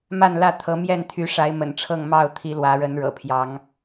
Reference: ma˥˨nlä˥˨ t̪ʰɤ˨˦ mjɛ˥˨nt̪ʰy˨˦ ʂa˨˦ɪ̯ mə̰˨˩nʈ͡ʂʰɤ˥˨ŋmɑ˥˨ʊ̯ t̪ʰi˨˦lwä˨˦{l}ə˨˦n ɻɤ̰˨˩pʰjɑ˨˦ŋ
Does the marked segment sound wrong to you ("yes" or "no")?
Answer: yes